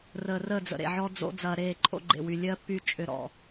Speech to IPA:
r əː˨ r əː˦˨ d͡z ə̰˨ ɾ ḛ˨ ʕ ɔ˦ d͡z o̰˦ d͡z ɐː˨ ɾ eː˦˨ ǃʼ o̰˦ ɡ͡ǃ ḛ˨ w y˨ lʲ ɜ˦ pː y˦ t͡ʃʼ ʏ˦˨ ɾ ɔ̰˨

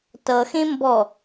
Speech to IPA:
t ʌ x ẽ m b ɔ

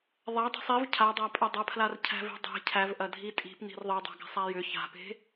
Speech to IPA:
ðˤ æ dˤ i̤ sˤ i v cʰ a dˤ a pʼ ɐ dˤ ɐ pʰ l a r cʰ æ̤ v e̤ dˤ e̤ cʰ æ v ʔ ɐ dʱ i tʼ i̤ p n i̤ r ðˤ e dˤ æ̤ ɡ a̤ sˤ æ j ʏ ç a̤ p e̤

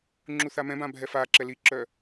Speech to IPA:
ŋ͡ǁ u θ a m ɛ̃ b ã bʱ ɛ f a ǁ ɛ l i ǁ œ

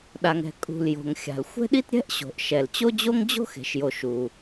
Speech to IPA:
ɗ a˩ ŋ ɛ̤˩ kʼ ṳ˩ l j o̤˩ ŋ xʲ a̤˩ l xʷ ɛ̤˥ ɗ i˥ t ɾʲ ɛ̤˥ ʔ ɕ o̤˩ ʔ ʃ ɛ˩ l t͡ɕ o˥ d͡ʑ o˥ ŋ d͡ʑ o̤˥ x e̤˩ ʃ j o˩ ʃ u˩

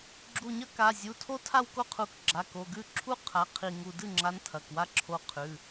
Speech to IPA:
ɡ͡ǁ u˧˩ ɲ ɐ˥ k a˩˧˩ zʲ u˩˧˩ tʰ o˥ tʰ a˥˧ w k o˥ qʰ u˧˩ k ɡ͡ǁ a˩˧˩ k o˩˧˩ ɡ ʉ˥˩ ǁʰ u˥ qʰ a˩˧˩ qʰ i˧˩ ŋ u˧˩ d ɨ˥˩ ŋ͡ǁ a˨˦ n tʰ ɐ˩˧˩ k w a˥ ǁʰ o˨˦ qʰ ʉ˩˧˩

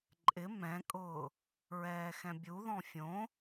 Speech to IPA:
ǃʼ ɪ m ɛ̃ kʼ ʊː | ɹ ɛː x ɛ̃ bʲ u ð ɔ̃ fʲ õ

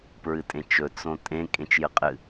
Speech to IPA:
p ɹ ɨ tʼ ẽ t͡ʃ ɵ t͡s õ tʼ ẽ kʼ ẽ t͡ʃ j ɨ qʼ ɨ

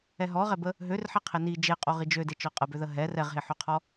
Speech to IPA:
ɛ ɦ ɔ ʁ ɛ b ə | ɦ ø r ħ e qʰ e n i d͡ʒ e qʼ o ʁ i d͡ʒ ø d e t͡ʃ ɔ qʼ ə b ø ð ə ɦ ɛ r ɛ ʁ ɦ e ħ ø qʰ ɔ

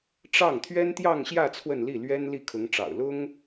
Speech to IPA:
ʈ͡ʂ ɑ˥˩ ŋ t̪ʰ ɥ ɛ˥ n t̪ j ɑ˥˧ ŋ ɕ j ä˥˧ t͡sʰ w ə˥˧ n l i˥˩ l ɥ ɛ˥ n l i˥˩ kʰ ʊ˧˥ ŋ ʈ͡ʂ ɑ̰˨˩ ʊ̯ l ʊ˥ ŋ

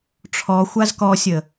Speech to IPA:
ʈ͡ʂʰ ɔ xʷ a z k ɔ sʲ ə

